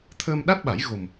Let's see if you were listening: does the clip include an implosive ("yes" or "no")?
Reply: yes